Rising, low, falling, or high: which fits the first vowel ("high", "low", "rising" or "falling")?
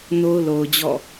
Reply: high